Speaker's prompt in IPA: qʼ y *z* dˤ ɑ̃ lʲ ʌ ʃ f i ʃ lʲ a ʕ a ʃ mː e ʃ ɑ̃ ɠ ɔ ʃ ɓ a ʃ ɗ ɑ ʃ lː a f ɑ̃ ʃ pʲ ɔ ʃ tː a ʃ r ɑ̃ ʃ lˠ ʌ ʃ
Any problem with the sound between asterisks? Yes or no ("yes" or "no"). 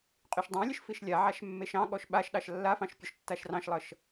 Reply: yes